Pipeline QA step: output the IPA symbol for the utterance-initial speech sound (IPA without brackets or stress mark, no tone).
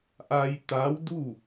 ʔ